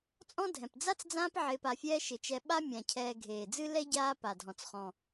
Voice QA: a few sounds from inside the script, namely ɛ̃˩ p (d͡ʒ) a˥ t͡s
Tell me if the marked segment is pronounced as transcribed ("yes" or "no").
no